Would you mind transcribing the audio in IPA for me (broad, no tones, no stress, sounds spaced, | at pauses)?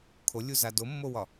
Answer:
kʰ o lʲ u z a d o mː o w ɒ